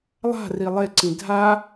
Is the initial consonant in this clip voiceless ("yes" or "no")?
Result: no